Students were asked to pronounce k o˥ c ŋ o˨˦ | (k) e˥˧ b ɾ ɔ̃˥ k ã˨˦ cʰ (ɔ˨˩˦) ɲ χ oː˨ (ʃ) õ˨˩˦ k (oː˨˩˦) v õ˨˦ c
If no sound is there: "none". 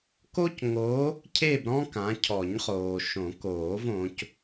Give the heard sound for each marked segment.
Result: cʰ, ɔ˨˩˦, ʃ, oː˨˩˦

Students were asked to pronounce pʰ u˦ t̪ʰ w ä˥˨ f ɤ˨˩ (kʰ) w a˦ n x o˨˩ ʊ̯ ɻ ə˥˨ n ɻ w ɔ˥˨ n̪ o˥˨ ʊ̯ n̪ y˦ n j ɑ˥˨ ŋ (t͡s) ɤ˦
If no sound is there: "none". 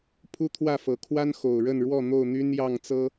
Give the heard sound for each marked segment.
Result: kʰ, t͡s

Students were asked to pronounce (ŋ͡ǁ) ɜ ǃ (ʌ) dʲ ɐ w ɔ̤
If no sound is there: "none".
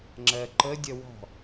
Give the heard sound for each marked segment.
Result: ŋ͡ǁ, ə

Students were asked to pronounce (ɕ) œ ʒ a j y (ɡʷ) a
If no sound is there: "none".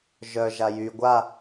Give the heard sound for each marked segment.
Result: ʒ, ɡʷ

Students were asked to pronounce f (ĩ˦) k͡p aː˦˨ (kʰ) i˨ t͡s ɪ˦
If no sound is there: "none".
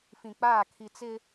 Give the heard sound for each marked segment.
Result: ĩ˨, kʰ

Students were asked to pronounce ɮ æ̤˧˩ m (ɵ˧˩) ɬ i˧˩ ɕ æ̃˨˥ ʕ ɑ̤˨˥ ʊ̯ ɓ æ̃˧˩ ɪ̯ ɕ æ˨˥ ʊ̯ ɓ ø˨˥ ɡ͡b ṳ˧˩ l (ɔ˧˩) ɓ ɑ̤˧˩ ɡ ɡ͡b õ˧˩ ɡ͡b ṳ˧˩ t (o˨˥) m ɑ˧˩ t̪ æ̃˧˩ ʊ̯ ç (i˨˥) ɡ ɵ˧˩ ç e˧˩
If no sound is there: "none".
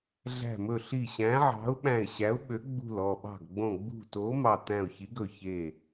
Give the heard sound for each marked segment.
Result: ɵ˧˩, ɔ˧˩, o˨˥, i˨˥

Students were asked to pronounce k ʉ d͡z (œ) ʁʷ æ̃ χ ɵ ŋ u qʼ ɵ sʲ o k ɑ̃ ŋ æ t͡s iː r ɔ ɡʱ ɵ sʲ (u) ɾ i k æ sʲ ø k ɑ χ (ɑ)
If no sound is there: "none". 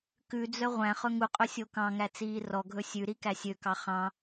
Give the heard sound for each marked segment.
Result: œ, ʉ, ɑ̃

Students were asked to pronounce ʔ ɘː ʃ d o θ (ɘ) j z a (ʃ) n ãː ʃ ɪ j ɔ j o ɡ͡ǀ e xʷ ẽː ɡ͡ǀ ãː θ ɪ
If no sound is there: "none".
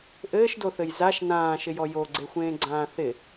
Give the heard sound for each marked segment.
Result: ɘ, ʃ

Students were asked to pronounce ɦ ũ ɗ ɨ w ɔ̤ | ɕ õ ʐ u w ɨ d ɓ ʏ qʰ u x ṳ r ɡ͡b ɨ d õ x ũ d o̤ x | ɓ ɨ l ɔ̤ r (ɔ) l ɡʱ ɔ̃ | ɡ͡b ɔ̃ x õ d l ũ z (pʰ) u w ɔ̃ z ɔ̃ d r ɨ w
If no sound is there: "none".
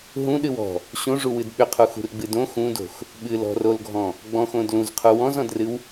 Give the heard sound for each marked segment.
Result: o, qʰ

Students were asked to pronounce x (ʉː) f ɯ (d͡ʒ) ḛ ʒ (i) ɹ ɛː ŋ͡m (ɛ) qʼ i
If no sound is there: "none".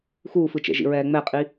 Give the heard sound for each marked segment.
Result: uː, t͡ʃ, ḭ, ɛ

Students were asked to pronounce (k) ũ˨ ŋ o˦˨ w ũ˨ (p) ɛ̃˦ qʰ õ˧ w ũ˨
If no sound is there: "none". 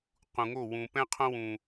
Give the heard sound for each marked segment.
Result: q, p

